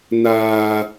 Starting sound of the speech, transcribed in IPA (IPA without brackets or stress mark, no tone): n